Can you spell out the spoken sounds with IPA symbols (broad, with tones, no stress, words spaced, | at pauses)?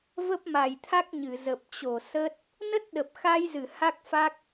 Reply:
və˦˥p̚ma˨˩jt̪ʰa˦˥k̚ɲɨ˧˩ zə˨˩p̚t͡ɕo˧˩ sə˦˥t̚ | nə˦˥t̚ɗə˨˩p̚xa˧jzɨ˧˩ ha˦˥k̚fa˦˥k̚